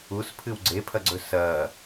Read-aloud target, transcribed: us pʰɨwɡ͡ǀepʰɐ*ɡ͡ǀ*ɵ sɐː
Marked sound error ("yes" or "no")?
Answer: no